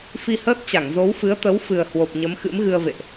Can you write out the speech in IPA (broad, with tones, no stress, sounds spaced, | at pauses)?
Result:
f i˧ h əː˦˥ t̚ t͡ɕ a˧˩ ŋ z o˨˦ w f ɨ˨˦ ə̯ t̪ ə˨˦ w f ɨ˨˩ ə̯ h w o˨˩ p̚ ɲ ə˨˦ m x ɨ̰˧˥ m ɣ ɨ˧ ə̯ v ḛ˧˨ ʔ